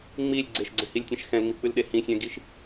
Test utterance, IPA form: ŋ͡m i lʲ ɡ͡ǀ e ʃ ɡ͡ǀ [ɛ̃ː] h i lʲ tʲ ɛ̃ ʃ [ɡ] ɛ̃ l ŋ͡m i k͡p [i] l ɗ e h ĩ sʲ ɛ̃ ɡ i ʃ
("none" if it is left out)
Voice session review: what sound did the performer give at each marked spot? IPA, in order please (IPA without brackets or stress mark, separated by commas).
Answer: ɛ̃, x, ɨ